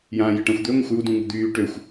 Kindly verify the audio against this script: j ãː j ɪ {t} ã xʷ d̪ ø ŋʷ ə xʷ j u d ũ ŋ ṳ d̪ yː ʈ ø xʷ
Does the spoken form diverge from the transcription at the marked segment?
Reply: yes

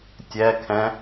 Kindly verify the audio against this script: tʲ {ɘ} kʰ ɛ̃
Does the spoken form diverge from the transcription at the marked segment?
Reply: yes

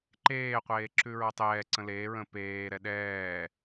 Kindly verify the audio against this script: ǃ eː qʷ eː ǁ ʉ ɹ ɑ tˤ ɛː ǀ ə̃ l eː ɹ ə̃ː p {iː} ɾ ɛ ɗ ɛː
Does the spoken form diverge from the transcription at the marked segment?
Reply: yes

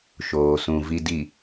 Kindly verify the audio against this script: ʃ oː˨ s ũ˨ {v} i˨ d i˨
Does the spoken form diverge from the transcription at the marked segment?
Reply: no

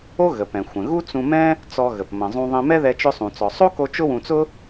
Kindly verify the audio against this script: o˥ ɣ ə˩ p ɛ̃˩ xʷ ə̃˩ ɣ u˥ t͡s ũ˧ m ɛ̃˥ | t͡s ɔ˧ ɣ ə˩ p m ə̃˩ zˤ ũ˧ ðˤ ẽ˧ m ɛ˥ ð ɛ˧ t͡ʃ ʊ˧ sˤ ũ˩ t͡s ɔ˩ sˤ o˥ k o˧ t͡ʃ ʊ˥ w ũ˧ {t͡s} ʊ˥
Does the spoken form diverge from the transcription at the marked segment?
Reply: no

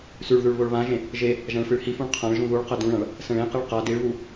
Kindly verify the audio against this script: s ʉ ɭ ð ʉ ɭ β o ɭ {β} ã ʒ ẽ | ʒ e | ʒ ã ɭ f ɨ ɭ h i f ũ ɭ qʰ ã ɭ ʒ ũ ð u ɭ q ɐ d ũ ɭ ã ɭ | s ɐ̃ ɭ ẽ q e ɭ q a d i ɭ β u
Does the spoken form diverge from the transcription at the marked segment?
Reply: no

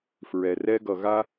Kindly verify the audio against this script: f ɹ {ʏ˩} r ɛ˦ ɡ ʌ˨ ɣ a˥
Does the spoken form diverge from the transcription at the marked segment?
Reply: yes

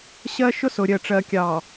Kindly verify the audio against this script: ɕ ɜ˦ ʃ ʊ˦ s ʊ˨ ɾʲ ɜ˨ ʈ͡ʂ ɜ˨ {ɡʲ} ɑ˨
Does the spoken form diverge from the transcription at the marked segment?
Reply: yes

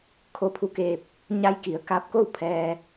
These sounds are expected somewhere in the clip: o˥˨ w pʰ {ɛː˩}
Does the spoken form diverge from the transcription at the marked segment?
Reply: yes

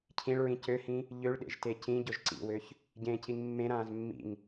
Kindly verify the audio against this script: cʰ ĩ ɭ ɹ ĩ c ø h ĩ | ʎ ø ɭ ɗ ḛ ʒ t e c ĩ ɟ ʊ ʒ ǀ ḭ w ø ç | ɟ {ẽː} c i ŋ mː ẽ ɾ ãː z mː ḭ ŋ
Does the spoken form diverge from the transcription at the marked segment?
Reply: no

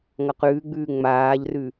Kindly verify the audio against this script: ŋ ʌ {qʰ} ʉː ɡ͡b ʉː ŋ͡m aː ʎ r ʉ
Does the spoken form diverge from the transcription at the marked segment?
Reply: yes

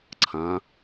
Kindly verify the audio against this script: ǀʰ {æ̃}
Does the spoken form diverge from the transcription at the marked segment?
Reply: yes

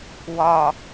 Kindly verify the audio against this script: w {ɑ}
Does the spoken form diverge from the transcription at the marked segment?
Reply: yes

